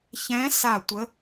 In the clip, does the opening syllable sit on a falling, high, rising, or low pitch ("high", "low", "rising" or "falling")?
rising